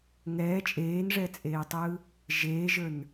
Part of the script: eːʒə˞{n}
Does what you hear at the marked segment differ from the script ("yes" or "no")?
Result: no